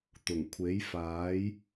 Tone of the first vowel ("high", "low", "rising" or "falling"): low